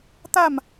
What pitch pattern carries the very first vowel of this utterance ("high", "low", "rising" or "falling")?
falling